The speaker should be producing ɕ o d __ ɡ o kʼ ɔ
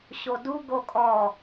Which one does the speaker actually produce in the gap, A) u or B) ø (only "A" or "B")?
A